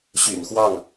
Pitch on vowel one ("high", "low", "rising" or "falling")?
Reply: low